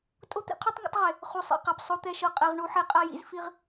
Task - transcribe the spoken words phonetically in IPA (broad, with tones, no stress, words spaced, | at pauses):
tʼo˦t̪ḭ˦qʰu˦tˤ ŋa̰˦tˤʁe˨ | χu˨sˤḭ˦˨qa˨p sˤo˦t̪ɛ˦ ʃɤ˦qʼɛ˦ʁ ɳu˦ħe˦ qʼa˦jḭ˦z fi˦ʁ